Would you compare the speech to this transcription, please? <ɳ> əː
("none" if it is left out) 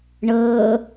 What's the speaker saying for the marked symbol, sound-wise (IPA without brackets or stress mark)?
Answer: ɳ